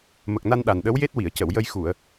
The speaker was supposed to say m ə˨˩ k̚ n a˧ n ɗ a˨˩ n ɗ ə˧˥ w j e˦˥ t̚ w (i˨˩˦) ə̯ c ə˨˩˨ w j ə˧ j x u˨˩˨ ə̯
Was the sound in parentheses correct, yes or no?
no